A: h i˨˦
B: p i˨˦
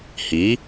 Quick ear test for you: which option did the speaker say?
A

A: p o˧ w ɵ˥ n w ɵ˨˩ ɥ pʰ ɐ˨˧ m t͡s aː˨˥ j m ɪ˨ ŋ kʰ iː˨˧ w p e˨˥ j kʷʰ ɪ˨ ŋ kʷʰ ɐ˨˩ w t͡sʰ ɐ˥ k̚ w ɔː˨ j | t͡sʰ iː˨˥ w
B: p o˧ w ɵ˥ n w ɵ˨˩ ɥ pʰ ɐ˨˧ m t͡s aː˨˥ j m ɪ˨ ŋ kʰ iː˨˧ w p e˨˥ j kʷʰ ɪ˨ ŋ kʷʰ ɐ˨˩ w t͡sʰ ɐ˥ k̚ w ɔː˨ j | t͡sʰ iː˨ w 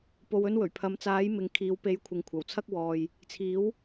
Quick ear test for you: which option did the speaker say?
A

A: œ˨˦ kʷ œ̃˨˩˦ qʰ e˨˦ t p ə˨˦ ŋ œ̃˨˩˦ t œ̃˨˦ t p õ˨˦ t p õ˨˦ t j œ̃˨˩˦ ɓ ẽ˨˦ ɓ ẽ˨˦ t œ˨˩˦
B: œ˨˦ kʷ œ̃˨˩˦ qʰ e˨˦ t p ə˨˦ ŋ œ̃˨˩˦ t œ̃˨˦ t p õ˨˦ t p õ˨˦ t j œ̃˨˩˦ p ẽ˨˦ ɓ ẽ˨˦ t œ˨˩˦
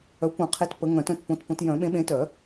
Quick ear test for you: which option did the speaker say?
A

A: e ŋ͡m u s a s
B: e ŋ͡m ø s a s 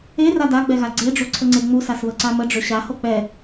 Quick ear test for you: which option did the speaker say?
A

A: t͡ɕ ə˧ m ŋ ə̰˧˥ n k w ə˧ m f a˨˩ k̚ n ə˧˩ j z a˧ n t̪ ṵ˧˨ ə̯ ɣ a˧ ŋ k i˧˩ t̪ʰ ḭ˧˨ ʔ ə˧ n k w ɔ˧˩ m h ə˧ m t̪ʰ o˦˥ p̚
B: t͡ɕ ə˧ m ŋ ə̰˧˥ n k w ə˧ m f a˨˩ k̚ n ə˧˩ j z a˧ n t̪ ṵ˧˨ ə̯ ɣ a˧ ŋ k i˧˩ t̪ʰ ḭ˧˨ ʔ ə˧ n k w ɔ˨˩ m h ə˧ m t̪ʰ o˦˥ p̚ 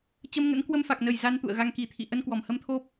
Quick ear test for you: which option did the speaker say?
A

